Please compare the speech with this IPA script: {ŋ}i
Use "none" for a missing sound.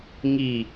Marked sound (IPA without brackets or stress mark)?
ŋ